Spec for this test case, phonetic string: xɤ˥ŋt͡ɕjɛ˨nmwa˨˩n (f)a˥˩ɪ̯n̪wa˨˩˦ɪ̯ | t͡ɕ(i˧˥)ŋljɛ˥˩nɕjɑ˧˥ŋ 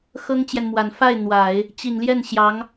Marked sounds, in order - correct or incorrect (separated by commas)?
correct, incorrect